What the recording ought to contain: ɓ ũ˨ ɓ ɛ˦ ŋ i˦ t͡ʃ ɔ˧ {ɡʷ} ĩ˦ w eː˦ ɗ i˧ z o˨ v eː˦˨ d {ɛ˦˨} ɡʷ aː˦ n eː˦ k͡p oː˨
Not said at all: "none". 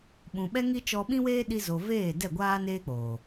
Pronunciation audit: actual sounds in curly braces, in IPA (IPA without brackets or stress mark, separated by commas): ɓ, ɛ˦˨